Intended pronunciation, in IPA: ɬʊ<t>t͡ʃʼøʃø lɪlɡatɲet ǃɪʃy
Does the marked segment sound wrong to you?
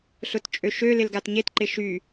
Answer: no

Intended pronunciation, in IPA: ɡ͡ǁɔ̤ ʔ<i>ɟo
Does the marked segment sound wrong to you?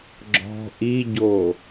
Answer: no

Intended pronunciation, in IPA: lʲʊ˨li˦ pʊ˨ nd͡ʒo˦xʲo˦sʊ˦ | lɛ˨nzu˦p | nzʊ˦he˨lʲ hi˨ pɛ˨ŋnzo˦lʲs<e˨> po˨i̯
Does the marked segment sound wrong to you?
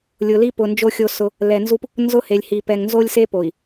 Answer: yes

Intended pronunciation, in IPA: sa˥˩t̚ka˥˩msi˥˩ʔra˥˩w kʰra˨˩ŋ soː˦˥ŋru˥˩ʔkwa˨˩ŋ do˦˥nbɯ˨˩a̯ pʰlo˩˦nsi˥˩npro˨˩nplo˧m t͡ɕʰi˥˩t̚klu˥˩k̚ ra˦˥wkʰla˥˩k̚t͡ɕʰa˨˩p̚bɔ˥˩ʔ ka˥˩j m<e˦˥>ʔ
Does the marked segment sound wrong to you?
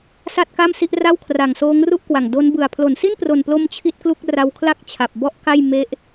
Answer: no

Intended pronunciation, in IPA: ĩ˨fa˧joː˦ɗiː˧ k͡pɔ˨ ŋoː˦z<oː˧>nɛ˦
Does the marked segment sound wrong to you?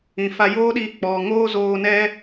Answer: no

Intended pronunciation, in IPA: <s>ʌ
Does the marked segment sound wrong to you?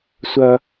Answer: yes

